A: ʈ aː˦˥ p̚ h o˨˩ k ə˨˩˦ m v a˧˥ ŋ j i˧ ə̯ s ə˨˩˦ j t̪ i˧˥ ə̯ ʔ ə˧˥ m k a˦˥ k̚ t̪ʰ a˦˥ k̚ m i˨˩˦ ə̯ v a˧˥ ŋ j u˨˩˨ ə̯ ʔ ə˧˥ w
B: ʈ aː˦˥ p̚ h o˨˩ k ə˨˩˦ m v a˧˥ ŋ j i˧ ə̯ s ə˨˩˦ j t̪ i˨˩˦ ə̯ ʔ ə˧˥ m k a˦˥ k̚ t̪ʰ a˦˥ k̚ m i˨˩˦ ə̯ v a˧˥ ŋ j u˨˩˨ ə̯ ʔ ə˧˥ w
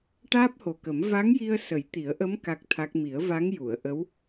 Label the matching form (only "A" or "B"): B